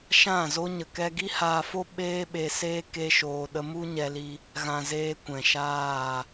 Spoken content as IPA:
ʃ ã˦˨ z o˦ ɲ ə˨ k ɛ˧ ɡ i˦ h aː˧ f o˦ ɓ eː˦ ɓ e˧ s eː˦ k e˦ ʃ oː˧ ɗ ə˦ m u˦ ɲ ɛ˧ l i˧ | ɣ ã˨ z eː˧ kʷ ɛ̃˨ ʃ aː˦˨

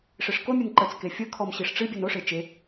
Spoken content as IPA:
ʂ e ʂ k o mʲ ɨ n ǃ ə t͡s k e fʲ ə kʰ ɔ m ɕ i ʂ ʈ͡ʂ ɨ bʲ ɨ n o ʂ e t͡ʃ e

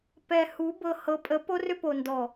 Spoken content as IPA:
p ɛ˨ h u˨˦ b ɤ˨ h ɤ˨˦ pʼ ə˨˦ p o˦ r ʏ˦ p o˨ n d ɔ˨

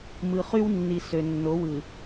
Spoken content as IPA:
m ɯ˨ χ y˦ w nː i˨ s ø˨ nː o˨˦ w ɯ˨

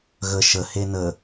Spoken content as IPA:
ɣ ə ʃ ə h e n ə

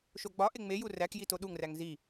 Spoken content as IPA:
ʃ o ɡ͡b ɒ ʔ e ŋ͡m e j u r æ k j i t o ɗ u ŋ r æ ŋ z i

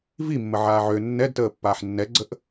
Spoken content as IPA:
v i mː ə ʕ aː ʕ ø nː ɛ d t əː pː aː ħ nː ɛ ɡ͡ǀ ə ʔ

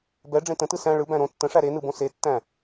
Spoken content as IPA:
b ɛ ɖ͡ʐ ẽ t ə̃ t ɯ s æ̃ ɭ ɯ b æ̃ ɾ õ tː ə̃ ʂ æ ɾ e n ɯ b õ s e tː æ̃

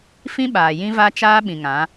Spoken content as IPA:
f ĩ˦ ɓ aː˨ j ĩ˦ v a˦ t͡ʃ aː˦ ɓ ĩ˨ ŋ ã˨˦

